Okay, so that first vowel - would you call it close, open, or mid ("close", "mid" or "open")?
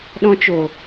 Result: mid